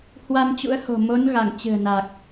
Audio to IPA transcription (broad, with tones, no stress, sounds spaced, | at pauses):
h w a˧ n t͡ɕ ṵ˧˥ ə̯ h o̤˨˩ m o˨˦ n ɣ a˧˩ ŋ t͡ɕ ɨ̤˨˩ ə̯ n a˨˩ k̚